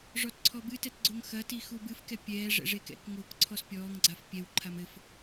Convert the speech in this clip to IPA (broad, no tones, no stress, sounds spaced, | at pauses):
ʐ ɔ t ǀʰ ɔ b ɨ t ɛ t ɡ͡ǀ o ŋ x ɐ t i x u b ɨ f k ɛ pʲ ɛː ʐ ɛ̰ ʐ e k ɛ̰ k ŋ oː k ǀʰ ɔ s pʲ ɔː ŋ ɡ͡ǀ a f pʲ ɛ w ǃʰ a m ɘ f